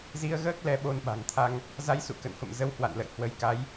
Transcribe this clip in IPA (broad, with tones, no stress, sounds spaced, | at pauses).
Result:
z i˧ ə̯ ɣ əː˦˥ k̚ l ɛ˧ ɓ o˧ n ɓ a̤˨˩ ŋ t̪ʰ a˧ ŋ | z a˧ j s ṵ˧˨ k ə̰˧˨ n f ə̰˧˨ m z ə˧ w h w a̰˧˨ n l ə̰˧˨ j h w ə˨˦ j k a˨˦ j